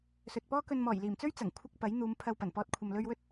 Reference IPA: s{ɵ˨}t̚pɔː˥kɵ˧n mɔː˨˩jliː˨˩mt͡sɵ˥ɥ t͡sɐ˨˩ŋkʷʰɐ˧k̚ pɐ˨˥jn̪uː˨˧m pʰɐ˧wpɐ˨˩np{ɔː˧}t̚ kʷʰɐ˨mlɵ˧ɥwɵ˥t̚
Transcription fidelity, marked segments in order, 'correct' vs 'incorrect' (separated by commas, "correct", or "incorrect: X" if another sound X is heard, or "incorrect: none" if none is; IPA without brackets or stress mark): correct, correct